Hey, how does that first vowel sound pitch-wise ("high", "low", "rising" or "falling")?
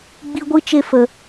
high